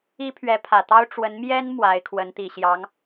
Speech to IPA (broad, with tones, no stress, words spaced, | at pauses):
i˥pʰɥɛ˧˥pʰä˨˩t̪ɑ˥ʊ̯ ʈ͡ʂwə˧˥nmjɛ˥n mwa˧˥ɪ̯kʰwə˧˥n t̪i˨˩ɕjɑ˧˥ŋ